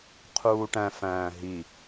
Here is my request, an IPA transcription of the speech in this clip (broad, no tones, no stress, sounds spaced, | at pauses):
qʰ uː ʈ æ̃ f æ̃ː ɦ i